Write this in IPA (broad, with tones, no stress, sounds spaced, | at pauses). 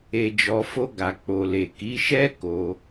e˨ d͡ʒ ɔ˨ f o˧ ɡ a˨ k͡p o˨ l e˨ k i˨˦ ʃ ɛ˦ k o˧